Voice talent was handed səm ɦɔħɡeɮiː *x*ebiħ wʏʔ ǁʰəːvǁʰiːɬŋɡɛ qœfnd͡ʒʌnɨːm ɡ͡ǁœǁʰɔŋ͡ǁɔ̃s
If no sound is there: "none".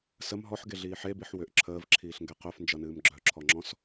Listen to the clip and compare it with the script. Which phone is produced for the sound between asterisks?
ħ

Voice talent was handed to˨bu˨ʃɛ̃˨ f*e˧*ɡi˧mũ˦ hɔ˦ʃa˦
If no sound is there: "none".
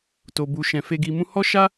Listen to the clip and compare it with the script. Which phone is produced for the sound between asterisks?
e˧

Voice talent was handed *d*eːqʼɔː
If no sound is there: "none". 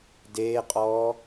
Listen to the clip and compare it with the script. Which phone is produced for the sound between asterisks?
d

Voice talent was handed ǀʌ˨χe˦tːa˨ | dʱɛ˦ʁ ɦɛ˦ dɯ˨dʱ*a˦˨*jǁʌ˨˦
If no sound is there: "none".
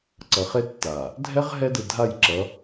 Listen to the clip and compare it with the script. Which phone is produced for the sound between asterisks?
a˦˨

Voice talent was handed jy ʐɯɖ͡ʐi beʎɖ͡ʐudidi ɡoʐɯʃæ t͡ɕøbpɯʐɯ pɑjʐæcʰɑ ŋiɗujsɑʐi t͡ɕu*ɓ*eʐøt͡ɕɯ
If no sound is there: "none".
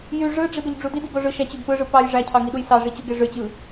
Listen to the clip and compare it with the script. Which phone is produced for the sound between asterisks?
ɡ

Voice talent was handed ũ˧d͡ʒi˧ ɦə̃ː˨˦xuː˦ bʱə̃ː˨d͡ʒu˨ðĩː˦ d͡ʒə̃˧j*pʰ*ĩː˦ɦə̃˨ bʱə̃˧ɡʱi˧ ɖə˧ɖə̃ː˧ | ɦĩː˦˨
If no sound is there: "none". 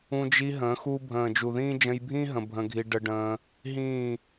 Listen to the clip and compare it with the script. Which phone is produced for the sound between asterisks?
bʱ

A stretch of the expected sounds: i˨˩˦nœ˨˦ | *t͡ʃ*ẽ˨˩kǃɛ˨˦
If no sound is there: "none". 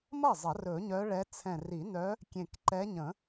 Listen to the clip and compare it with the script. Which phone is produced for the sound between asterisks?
kʲ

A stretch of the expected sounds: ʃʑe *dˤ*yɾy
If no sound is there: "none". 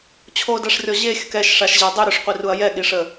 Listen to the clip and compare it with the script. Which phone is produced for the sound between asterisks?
dˤ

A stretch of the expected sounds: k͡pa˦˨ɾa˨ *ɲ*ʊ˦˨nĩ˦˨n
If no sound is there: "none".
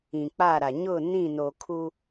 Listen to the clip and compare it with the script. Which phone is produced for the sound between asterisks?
ɲ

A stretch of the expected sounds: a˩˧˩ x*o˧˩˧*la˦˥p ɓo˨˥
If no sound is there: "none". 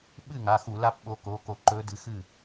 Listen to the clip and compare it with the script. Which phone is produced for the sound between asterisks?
u˧˩˧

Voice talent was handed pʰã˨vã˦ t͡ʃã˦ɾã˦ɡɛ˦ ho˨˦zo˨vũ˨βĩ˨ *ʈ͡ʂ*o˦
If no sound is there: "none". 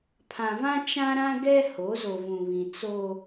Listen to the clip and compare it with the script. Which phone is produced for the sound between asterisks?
t͡s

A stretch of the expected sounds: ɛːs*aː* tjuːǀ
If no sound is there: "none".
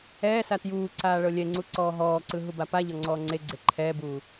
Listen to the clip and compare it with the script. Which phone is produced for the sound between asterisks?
a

